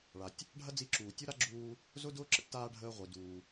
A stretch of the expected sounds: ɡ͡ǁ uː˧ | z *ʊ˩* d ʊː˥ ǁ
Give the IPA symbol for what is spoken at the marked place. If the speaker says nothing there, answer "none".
ʊ˥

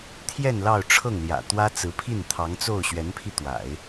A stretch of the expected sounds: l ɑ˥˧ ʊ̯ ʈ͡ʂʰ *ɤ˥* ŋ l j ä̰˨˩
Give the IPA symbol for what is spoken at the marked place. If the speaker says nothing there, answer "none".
ɤ˥˩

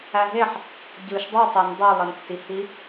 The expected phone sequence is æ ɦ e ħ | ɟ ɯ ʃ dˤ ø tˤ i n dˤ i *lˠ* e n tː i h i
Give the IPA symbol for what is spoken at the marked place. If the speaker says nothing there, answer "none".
lˠ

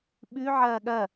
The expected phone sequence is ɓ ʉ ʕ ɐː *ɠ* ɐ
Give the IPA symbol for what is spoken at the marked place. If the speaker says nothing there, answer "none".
ɠ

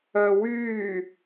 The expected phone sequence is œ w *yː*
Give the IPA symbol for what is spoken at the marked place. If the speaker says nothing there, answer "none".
yː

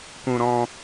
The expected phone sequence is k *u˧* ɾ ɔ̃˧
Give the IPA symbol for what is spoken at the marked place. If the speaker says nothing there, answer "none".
ũ˧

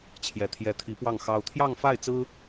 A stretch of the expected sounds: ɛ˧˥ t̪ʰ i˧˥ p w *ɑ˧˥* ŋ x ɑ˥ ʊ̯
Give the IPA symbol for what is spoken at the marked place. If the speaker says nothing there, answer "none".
ɑ˥˩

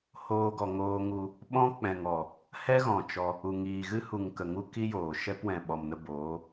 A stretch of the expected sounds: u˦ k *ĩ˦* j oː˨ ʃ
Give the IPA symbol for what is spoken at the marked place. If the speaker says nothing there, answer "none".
i˦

